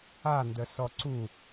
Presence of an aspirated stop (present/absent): absent